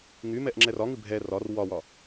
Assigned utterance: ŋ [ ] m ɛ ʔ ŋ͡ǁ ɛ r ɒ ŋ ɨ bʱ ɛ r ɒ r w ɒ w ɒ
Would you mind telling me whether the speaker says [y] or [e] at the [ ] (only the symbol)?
y